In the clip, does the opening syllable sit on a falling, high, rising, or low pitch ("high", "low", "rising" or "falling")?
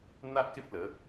high